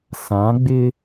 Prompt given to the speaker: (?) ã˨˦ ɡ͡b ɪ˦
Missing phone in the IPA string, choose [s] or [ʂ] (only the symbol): s